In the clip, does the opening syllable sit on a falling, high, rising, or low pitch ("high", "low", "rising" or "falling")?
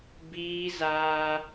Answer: high